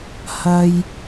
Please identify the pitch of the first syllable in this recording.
high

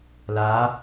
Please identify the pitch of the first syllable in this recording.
rising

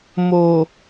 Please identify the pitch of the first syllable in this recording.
low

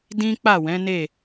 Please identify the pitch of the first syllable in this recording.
high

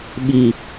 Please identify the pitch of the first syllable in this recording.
low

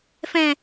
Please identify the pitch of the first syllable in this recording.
low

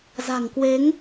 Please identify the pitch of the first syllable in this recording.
low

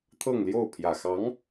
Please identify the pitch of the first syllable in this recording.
falling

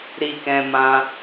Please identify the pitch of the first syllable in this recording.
high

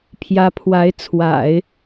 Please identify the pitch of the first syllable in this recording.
rising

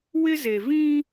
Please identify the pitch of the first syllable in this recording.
high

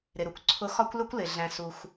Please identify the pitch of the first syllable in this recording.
low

